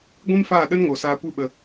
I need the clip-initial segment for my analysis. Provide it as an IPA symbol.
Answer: ɡʷ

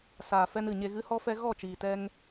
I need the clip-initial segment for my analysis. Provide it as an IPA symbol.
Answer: s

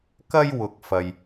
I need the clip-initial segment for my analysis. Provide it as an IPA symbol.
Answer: k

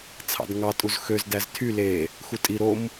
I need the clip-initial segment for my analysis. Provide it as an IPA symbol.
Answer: t͡sʰ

